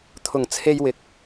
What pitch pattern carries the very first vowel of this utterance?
low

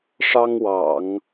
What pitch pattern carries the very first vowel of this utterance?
high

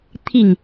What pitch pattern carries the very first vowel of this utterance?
falling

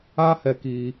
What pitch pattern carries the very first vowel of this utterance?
high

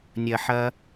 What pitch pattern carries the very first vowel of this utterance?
low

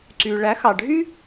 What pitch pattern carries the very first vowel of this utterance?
low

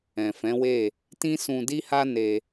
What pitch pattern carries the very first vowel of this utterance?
low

